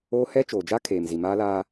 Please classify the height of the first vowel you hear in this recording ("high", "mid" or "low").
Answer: mid